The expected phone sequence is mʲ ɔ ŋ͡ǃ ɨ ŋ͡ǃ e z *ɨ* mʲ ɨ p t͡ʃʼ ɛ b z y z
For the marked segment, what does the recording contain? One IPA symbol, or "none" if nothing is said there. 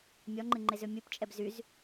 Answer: ʏ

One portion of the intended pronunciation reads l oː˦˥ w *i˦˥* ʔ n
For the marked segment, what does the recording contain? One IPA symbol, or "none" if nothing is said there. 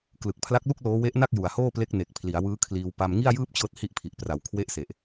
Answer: e˦˥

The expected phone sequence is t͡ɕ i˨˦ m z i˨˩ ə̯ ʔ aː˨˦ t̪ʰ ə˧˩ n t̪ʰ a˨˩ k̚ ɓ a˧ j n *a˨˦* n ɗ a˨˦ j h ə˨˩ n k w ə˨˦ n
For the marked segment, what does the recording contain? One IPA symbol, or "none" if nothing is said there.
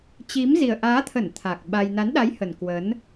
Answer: a˨˦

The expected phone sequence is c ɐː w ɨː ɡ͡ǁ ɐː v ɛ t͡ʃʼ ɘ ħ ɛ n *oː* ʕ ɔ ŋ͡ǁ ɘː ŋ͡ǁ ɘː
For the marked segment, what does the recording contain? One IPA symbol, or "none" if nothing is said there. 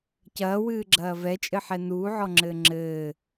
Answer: uː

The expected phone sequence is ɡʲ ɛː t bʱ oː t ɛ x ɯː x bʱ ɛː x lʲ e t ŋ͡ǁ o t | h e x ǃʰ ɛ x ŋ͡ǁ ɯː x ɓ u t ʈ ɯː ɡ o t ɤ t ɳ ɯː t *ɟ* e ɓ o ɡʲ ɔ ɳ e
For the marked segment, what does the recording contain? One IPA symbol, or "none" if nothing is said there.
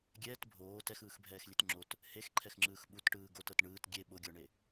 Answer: ɡʲ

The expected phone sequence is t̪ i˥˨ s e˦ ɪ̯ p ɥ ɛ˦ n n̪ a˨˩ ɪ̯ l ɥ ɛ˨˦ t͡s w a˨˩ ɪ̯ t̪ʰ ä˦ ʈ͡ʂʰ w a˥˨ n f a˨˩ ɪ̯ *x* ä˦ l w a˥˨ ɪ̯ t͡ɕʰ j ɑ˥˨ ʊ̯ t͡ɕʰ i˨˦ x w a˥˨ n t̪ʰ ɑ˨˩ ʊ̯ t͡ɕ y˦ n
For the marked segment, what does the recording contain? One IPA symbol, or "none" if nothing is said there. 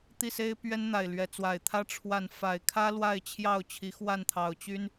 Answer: kʰ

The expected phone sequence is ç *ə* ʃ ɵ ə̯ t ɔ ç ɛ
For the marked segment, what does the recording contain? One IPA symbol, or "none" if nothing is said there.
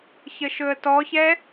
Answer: ə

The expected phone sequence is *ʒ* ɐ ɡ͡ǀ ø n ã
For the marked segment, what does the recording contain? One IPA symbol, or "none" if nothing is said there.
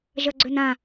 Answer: ʒ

